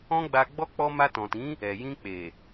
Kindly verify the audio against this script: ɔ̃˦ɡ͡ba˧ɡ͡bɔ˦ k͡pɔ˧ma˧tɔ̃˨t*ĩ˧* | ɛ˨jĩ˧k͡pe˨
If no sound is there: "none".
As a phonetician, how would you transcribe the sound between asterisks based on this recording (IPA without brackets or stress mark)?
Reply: ĩ˨˦